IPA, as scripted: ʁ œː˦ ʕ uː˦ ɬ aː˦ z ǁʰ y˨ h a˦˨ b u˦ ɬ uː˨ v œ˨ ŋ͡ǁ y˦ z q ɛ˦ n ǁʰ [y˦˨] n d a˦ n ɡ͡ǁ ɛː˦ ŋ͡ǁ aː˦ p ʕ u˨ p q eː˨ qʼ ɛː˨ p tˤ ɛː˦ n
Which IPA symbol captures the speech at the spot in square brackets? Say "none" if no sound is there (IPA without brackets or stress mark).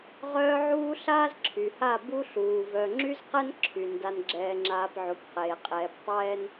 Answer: y˨